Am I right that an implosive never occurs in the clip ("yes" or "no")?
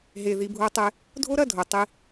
yes